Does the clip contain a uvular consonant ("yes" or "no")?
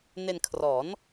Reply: no